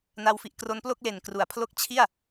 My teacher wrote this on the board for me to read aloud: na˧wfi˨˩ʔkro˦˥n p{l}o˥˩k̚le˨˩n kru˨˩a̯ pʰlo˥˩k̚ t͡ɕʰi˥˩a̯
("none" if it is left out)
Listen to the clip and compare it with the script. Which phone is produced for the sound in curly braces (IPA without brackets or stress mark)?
l